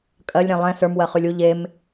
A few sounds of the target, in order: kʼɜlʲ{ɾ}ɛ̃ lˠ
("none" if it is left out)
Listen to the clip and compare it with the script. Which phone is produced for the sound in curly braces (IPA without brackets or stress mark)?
ɾ